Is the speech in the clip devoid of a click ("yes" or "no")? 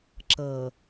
no